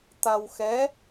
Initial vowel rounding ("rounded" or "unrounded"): unrounded